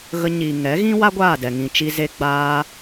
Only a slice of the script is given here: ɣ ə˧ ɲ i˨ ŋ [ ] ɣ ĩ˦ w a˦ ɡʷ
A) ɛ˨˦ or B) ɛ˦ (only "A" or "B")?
A